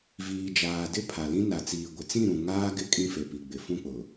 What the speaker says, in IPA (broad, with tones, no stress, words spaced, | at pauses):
viː˨d͡ʒaː˨dɪ˦ pʰa˨lĩ˦ na˨t͡siː˨ ɡʷɪ˨t͡sĩ˦˨ ɾũ˨ ŋaː˦ɡɪ˦ kʼĩ˦fe˨pi˨ ɡ͡bɪ˨fũ˦k͡pʊ˨